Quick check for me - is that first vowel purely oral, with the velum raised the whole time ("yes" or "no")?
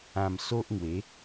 no